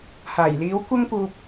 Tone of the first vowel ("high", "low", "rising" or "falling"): low